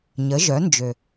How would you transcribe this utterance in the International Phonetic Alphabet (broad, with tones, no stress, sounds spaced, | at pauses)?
ɲ ə˩˧ ʒ œ˩˧ n d͡ʒ ø˩